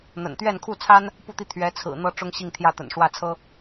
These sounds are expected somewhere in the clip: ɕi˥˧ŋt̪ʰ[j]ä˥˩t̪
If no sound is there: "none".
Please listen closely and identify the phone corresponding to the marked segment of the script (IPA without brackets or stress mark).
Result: j